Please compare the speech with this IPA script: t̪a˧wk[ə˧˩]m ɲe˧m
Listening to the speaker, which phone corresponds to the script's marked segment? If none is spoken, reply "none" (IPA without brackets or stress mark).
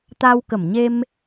ə˧˩